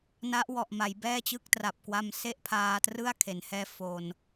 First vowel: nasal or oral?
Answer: oral